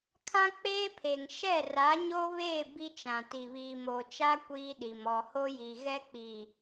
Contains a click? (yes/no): no